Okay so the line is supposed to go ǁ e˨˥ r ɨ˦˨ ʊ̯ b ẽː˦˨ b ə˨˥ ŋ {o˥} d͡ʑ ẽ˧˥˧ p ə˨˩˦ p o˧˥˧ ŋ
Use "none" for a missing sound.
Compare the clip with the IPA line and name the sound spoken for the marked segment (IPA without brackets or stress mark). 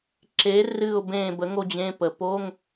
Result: o˥